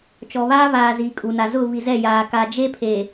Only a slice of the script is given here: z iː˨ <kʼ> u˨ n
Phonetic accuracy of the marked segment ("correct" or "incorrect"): correct